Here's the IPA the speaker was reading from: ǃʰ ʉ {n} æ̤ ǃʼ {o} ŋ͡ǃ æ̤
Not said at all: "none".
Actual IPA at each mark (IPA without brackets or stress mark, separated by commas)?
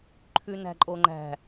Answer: n, o